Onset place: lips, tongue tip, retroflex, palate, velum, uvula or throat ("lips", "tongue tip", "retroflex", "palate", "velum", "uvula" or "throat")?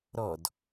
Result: tongue tip